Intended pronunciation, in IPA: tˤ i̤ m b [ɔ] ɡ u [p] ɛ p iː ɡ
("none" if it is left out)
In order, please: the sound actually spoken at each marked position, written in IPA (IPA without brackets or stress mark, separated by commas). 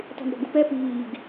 ɔ̤, p